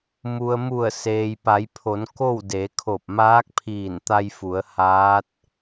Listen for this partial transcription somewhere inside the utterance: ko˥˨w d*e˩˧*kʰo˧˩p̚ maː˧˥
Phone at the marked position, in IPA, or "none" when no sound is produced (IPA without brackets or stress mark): e˩˧